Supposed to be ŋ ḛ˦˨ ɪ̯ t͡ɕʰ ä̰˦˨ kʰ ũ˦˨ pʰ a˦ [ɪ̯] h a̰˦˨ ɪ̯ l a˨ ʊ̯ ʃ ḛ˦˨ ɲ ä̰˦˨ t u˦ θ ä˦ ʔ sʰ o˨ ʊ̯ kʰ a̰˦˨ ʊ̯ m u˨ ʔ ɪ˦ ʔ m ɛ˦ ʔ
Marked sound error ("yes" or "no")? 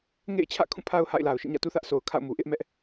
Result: yes